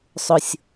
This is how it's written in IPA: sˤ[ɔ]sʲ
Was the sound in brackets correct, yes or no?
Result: no